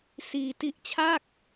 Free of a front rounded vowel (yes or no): yes